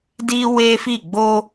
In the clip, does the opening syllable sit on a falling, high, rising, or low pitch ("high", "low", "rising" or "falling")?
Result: high